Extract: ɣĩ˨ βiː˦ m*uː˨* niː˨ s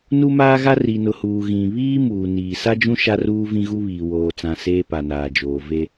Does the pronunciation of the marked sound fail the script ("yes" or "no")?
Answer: no